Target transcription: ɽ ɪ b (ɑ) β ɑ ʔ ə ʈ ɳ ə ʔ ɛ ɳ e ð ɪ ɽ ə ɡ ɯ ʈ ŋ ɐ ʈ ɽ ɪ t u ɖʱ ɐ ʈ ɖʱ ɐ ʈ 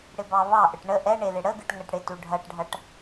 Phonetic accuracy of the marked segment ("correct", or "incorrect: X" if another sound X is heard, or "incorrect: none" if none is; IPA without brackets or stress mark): correct